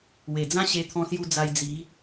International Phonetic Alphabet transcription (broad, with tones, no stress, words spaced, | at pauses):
we˨˩d͡zã˦ ɕe˧t̪ʰɔ̃˧sju˧ d͡za˧j d͡zi˨˦